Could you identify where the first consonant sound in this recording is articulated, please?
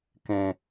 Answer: velar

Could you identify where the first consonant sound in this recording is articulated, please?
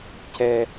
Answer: palatal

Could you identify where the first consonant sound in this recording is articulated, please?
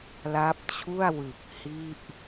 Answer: alveolar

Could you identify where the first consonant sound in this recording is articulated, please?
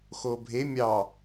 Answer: velar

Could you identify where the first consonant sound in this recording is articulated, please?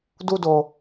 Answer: alveolar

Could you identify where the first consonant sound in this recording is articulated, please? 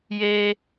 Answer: palatal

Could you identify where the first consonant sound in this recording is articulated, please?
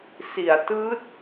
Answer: alveolar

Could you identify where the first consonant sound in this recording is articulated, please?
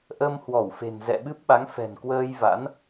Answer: glottal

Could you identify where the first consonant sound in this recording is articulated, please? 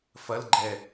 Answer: labial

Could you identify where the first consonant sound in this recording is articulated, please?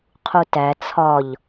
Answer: uvular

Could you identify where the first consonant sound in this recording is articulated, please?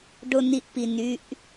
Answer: retroflex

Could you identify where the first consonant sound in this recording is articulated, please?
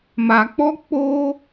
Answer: labial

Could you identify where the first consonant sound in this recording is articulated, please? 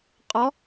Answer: uvular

